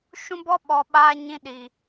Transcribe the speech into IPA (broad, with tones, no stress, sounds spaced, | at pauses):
ʃ ũ˦ b ɔ˦ ɓ ɔ˨ ɓ aː˧ ɲ ĩ˧ ɗ i˨